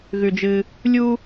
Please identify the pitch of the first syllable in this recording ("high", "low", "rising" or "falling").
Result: high